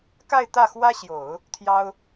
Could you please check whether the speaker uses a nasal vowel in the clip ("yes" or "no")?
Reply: no